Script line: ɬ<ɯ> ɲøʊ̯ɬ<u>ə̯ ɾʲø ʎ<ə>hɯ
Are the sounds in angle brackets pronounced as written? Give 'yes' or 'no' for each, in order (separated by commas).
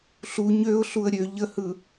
no, yes, yes